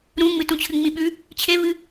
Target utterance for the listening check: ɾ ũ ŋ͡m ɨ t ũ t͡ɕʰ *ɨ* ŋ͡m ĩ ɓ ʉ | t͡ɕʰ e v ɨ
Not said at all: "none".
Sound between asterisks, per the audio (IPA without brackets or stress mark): ɨ